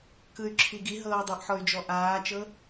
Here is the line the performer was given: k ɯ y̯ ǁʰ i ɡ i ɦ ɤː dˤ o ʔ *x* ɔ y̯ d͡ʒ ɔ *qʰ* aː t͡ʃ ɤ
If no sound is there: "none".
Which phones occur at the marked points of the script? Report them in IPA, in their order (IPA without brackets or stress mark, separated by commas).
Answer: ħ, ʔ